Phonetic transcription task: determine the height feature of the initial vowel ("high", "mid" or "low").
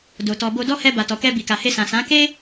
mid